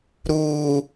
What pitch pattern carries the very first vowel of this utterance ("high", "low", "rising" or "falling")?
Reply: high